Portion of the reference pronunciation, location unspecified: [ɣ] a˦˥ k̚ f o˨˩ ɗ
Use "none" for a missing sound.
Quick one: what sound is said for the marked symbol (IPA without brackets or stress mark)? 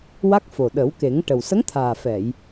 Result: w